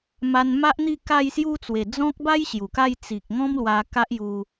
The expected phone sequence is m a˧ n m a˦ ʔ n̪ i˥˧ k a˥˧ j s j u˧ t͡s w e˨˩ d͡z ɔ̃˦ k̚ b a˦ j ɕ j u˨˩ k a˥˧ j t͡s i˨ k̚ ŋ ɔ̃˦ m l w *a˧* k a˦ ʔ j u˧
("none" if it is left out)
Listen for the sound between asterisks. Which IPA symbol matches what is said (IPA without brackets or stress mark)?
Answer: a˧